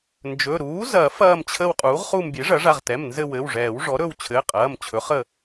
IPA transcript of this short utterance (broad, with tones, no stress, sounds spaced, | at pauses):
n d͡ʒ ɵ˩˧˩ ɾ uː˩˥ z ɐː˨˩˦ f ɐː˦˨ m t͡ɕʰ ə˦˨ w qʼ uː˩˥ ʁ χ u˦˨ m bʲ e˩˥ ʐ ɐ˩˥ ʐ a˩˧˩ ʁ t ɛ˩˧˩ m n z ɘ˦˨ w ɘ˩˧˩ w ʐ ɛː˨˩˦ w ʐ ɔ˩˥ ɾ ɵ˦˨ w t͡ɕʰ ɘː˩˧˩ qʼ ɐː˩˧˩ m t͡ɕʰ ɵ˩˥ χ ə˦˨